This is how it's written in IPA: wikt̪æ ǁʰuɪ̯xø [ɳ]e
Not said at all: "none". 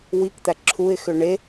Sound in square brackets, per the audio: ɳ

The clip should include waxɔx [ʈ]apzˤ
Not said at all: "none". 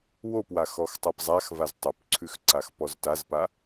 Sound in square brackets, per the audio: tˤ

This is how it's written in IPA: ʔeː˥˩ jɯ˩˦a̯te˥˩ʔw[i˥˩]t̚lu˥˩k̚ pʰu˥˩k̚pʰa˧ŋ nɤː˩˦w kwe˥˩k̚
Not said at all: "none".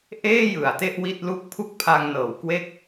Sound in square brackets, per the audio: i˥˩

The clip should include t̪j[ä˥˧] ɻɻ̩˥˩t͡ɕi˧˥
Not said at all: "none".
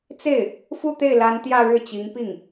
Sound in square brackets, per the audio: ä˥˧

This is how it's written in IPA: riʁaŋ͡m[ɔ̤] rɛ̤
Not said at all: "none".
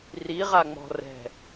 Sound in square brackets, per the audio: ɔ̤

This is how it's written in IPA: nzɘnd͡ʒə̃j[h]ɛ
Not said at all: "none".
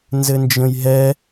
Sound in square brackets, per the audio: ɦ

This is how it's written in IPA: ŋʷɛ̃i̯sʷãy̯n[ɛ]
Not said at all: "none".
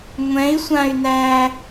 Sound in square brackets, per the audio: æ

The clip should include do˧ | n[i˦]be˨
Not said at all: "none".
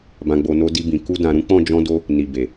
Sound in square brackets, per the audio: i˨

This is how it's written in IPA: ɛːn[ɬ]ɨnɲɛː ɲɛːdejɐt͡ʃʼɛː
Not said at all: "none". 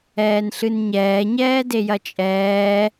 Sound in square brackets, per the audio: ɬ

